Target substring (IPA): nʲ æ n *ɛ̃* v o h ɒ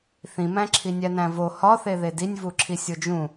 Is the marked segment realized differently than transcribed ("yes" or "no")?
yes